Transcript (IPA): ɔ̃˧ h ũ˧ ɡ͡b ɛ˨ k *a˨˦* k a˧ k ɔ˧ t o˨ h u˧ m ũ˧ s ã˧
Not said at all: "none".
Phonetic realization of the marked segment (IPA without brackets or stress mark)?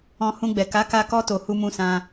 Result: a˨˦